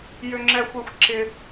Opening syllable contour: high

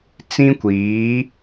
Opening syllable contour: high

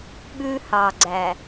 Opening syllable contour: high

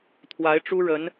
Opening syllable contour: rising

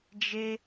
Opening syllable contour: high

